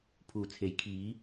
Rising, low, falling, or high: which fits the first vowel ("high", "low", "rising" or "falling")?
low